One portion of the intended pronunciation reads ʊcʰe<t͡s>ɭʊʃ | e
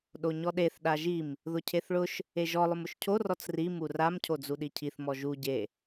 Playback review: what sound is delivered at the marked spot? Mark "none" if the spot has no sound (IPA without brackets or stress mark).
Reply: θ